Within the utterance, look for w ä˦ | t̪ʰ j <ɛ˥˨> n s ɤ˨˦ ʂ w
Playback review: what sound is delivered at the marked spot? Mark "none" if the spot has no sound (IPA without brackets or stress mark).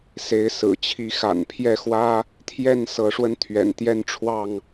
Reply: ɛ˥˨